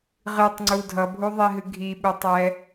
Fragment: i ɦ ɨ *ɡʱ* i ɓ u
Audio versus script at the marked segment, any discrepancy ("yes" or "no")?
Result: no